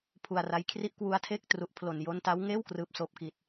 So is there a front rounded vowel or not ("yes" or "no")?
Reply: no